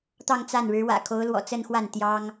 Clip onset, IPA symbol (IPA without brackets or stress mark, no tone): t̪